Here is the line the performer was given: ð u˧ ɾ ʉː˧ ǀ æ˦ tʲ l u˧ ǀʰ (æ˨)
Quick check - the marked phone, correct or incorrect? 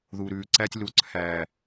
correct